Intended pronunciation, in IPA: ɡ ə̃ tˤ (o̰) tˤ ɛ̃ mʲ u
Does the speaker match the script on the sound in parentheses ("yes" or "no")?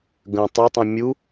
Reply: no